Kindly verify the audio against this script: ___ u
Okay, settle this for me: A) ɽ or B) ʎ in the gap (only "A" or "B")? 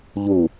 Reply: B